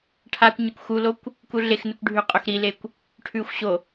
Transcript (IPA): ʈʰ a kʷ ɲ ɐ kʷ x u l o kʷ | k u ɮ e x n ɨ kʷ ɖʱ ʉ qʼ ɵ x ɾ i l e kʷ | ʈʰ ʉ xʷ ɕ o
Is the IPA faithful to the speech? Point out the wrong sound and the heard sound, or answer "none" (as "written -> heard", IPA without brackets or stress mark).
none